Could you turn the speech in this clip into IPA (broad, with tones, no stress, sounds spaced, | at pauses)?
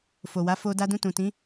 f o˨ w a˨˦ f o˧ d a˧ d ũ˧ t ũ˨ t ĩ˨˦